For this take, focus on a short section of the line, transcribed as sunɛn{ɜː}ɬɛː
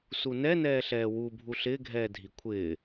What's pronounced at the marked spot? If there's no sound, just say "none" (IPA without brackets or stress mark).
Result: ɛː